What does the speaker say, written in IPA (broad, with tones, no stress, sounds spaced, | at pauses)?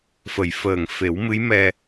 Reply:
f ə˨˩˨ j f əː˨˩ ŋ f e˨˩˦ w m ɨ˧˥ j m ɛ˧